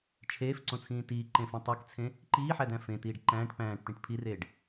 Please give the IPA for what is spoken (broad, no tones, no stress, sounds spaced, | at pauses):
t͡ʃʰ eː f ǀ õ t͡sʰ ĩː t iː ǃ ẽ f ĩ tˤ e k t͡sʰ ẽ | ǃ iː ħ æ d æ̃ f ẽ t̪ iː ɖ ǃ æ̃ː ʈ p æ̃ː ʈ t̪ ĩ ʈ pʰ i r eː ɖ